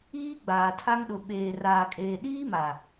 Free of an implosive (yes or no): no